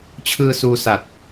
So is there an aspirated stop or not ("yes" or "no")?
yes